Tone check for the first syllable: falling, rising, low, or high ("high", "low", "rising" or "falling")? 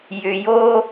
low